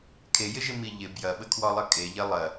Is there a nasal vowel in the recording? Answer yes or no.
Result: no